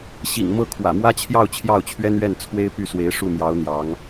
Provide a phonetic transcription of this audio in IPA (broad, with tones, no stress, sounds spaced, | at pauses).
ɕ ḭ˨˩ ŋ m ɤ˥˩ kʰ w ä̰˨˩ m w ä˥ t͡ɕʰ j ɑ˥˧ ʊ̯ t͡ɕʰ j ɑ˥˩ ʊ̯ t͡ɕʰ ɥ ɛ˥ n ɥ ɛ˥˩ n t͡sʰ w e˥ ɪ̯ p y˥˩ s w e˧˥ ɪ̯ ʂ u˥˩ m j ɑ˧˥ ʊ̯ n̪ j ɑ˧˥ ŋ